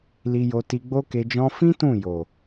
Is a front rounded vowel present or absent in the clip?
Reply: absent